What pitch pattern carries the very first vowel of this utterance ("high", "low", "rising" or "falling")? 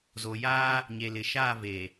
low